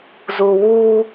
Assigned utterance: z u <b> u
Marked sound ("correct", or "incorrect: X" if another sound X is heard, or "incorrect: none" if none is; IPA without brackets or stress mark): incorrect: w